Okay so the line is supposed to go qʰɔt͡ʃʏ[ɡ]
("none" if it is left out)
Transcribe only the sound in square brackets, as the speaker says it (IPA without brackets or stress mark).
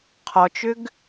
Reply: ɡ